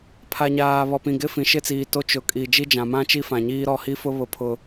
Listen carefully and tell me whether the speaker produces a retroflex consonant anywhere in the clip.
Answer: no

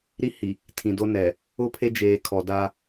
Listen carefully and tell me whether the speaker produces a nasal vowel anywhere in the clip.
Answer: yes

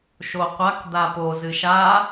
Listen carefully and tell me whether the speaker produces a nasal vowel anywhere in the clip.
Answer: no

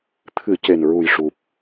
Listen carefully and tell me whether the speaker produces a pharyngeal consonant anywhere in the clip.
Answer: no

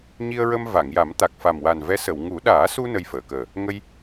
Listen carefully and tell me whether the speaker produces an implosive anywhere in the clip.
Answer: yes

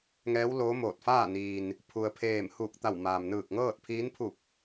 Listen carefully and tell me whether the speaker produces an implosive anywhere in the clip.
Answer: no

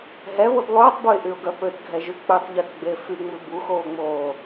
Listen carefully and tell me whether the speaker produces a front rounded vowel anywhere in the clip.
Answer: yes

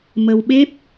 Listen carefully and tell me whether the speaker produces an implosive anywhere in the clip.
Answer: yes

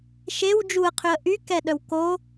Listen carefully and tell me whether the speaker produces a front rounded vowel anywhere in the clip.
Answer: yes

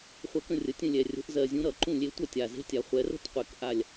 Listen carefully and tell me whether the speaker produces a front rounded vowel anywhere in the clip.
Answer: no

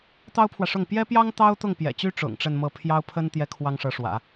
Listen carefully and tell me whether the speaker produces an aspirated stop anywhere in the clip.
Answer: yes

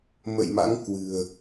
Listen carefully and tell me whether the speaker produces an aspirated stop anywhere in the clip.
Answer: no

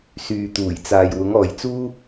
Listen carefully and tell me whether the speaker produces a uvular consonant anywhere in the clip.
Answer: no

